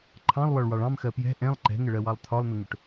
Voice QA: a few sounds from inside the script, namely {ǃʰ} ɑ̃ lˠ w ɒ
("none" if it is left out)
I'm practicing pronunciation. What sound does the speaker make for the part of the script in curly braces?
ǃʰ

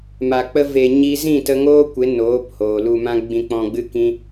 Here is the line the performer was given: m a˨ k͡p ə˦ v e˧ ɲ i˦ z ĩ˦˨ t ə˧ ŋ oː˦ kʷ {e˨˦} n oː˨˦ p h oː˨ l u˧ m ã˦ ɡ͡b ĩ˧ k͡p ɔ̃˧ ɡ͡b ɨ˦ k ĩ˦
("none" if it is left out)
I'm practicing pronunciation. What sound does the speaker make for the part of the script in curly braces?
e˨˦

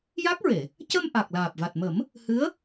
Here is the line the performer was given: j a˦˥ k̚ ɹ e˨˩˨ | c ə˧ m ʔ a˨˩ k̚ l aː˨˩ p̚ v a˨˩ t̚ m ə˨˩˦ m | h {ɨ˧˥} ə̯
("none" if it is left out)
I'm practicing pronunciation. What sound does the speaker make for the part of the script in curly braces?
ɨ˧˥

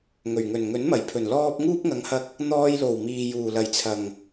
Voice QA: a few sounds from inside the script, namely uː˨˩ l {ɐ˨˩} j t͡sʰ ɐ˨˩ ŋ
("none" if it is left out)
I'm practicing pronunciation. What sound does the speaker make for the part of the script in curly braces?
ɐ˨˩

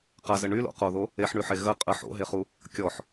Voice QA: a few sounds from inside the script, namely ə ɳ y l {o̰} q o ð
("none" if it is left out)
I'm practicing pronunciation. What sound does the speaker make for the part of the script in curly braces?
o̰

